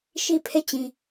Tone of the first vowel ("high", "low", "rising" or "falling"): falling